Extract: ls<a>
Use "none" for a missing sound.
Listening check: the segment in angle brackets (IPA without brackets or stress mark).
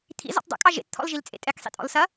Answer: ɐ